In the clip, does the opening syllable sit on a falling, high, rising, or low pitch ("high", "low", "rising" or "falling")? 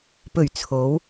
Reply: low